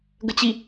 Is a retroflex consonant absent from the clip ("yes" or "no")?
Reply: yes